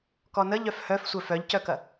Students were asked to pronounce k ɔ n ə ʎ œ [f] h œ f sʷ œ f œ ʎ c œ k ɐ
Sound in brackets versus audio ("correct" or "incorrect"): correct